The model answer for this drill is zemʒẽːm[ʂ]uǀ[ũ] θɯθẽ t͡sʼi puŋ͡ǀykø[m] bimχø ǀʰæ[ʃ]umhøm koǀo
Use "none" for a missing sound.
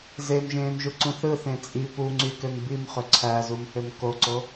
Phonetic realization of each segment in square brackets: ʒ, ũ, m, z

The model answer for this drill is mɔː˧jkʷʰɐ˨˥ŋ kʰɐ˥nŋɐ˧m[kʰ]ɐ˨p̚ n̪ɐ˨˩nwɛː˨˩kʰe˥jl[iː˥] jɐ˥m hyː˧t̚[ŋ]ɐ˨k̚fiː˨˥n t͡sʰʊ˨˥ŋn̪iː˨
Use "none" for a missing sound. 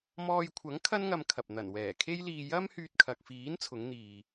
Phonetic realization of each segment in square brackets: kʰ, iː˧, kʰ

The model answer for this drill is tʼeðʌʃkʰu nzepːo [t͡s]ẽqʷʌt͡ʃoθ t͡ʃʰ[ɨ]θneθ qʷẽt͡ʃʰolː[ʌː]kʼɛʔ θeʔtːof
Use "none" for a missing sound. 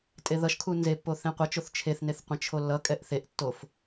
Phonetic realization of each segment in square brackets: θ, e, ʌ

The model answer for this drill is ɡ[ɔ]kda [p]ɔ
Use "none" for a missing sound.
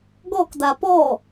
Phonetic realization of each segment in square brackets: ɔ, p

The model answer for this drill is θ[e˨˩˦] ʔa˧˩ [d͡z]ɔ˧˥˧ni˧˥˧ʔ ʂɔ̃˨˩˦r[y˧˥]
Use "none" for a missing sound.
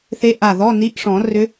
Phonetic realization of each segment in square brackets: e˧˥, ð, ʏ˧˥

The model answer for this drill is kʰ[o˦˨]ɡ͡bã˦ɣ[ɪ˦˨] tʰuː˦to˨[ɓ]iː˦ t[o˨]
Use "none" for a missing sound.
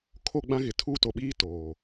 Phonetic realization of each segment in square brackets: o˦˨, ɪ˨, ɓ, oː˨

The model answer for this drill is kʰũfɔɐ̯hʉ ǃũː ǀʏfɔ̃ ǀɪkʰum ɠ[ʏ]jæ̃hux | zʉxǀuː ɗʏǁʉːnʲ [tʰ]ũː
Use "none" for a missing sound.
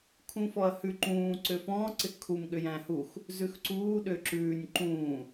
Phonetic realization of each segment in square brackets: ʏ, ǃ

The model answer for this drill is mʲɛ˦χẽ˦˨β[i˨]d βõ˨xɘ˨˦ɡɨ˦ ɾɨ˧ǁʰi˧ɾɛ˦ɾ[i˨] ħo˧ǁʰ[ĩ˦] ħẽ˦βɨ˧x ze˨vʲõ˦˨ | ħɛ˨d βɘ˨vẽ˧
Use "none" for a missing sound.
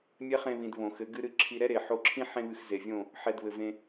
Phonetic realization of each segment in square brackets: ĩ˨, e˨, ĩ˦

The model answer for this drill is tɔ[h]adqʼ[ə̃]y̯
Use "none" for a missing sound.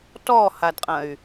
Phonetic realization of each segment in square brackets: h, ɐ̃

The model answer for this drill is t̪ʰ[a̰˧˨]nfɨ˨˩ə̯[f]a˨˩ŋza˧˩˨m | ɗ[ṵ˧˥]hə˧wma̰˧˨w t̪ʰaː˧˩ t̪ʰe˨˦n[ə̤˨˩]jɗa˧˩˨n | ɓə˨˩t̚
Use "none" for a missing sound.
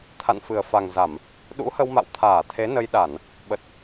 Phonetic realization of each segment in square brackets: a̰˧˨, f, ṵ˧˥, ə˧

